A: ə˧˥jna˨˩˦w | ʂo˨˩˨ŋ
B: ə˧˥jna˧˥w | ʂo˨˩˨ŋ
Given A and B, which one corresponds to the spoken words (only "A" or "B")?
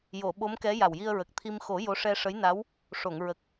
B